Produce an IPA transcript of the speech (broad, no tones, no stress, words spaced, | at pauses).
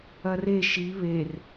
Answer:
ɐre ʃi βer